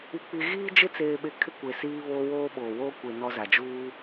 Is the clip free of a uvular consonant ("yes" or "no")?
yes